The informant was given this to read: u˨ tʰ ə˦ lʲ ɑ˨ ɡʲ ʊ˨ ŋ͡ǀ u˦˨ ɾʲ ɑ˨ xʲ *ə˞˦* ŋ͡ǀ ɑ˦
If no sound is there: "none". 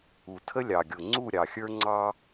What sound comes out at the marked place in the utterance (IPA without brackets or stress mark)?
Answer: ə˞˦